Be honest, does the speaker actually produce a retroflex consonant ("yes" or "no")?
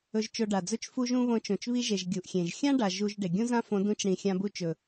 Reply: yes